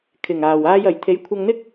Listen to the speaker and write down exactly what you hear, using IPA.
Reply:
kʰ ɪ˨˩ ŋ aː˨˩ w aː˧ j ɐ˨˩ j t̪ʰ e˨˥ j kʷʰ ɐ˧ ŋ n̪ ɪ˥ k̚

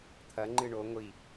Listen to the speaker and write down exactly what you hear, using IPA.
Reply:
t̪ʰ ɐ ŋ͡ǃ ɨ ɳ o ŋʷ i

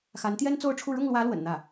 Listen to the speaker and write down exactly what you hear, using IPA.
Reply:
x a˧˥ n t̪ j ɛ˥ n t͡s o˥˧ ʊ̯ ʈ͡ʂʰ u˥˧ ɻ ʊ˥˩ ŋ l w ä˧˥ l w ə̰˨˩ n n̪ ä˥˩

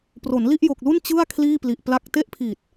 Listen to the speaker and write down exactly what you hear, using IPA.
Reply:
p r o˩˦ n l i˥˩ ʔ j o˨˩ k̚ l u˥˩ n t͡ɕ ɯ˥˩ a̯ kʰ l iː˥˩ p l i˨˩ ʔ p l a˥˩ k̚ t e˥˩ ʔ pʰ i˨˩ t̚

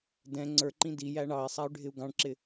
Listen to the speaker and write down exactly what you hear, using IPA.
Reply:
d ɛ̃ ŋ͡ǀ ə˞ ǃ ĩ d i j æ ɳ ɑ i̯ sˤ æ y̯ ɖʱ ɪ u̯ ɡ ɑ̃ ɳ ǁ ɪ

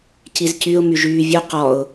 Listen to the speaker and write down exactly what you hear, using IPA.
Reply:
c i z c y ʊ̯ m y ʒ yː vʲ o q ɔ ʊ̯

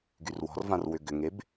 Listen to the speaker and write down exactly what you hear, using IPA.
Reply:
ɡ y r w ɔ̤ r v ã r w ʏ ɡ ʏ ŋ e b

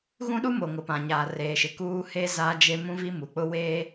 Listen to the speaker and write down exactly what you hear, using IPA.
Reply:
ɣ ũ˦ ɗ u˦ m o˨ ŋ ʊ˨ p ã˨ ɲ aː˨ r eː˨ ʃ ɪ˨ k uː˦ h e˦ z aː˦ d͡ʒ e˦ m ũ˦ v i˦ m u˨ k͡p ʊ˦ w eː˦

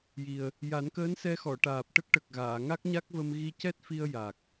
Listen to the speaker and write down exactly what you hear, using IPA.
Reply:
j i˨˩ ə̯ | j a˨˩˦ n k əː˧˥ n s ɛ˧ x ɔ˨˩˨ ʈ aː˨˩ p̚ ʈ ə˦˥ k̚ ʈ ə˨˩ k̚ ɣ aː˨˩˨ ŋ a˦˥ k̚ ɲ a˦˥ k̚ v ə˧ m ɣ i˧ c ɛ˦˥ t̚ f i˧ ə̯ j a˨˩ k̚

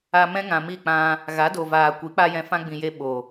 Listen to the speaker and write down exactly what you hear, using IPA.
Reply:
a˧ m ɛ̃˦ ŋ ã˨ m i˦˨ k͡p ã˧ | ɣ a˨˦ d o˨ v aː˨ kʷ i˨˦ k͡p a˦ j ɛ̃˧ f ã˦ ɡ͡b ĩ˨ j e˧ ɓ o˨

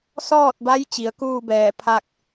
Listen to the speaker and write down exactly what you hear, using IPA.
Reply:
s ɔː˥˨ t̚ b a˧˥ j t͡ɕ i˩˧ ə̯ k uː˥˨ b ɛː˧˩ pʰ a˥˨ k̚

